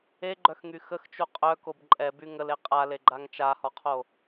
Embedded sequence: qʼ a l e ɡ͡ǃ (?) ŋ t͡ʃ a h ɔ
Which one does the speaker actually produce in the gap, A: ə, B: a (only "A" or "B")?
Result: B